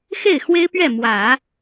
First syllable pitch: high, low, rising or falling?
falling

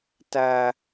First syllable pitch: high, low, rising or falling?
high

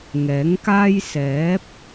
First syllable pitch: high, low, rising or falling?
rising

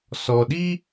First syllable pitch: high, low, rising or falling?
low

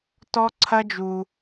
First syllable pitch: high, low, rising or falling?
high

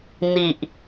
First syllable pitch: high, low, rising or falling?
low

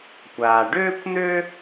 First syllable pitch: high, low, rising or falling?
low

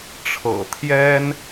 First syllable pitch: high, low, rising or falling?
low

